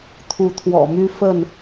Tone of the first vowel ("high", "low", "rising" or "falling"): rising